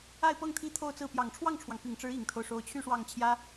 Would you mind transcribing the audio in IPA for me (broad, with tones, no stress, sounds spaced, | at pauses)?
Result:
a˥˧ ɪ̯ p ɤ˥˩ ŋ t̪ʰ i˥ t̪ʰ o˥˧ ʊ̯ t͡s ɹ̩˥˩ p j ɑ˨˩ ŋ ʈ͡ʂʰ w ɑ˥˩ ŋ ʈ͡ʂʰ w ɑ˩ ŋ p i˨˩ ŋ ʈ͡ʂ ɻ̩˧˥ i˨˩ ŋ t̪ʰ o˦ ʊ̯ ʂ o˧˥ ʊ̯ t͡ɕʰ y˥˧ ʂ w ɑ˥˩ ŋ t͡ɕʰ j ä˥